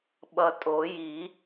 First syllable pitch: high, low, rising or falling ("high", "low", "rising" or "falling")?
low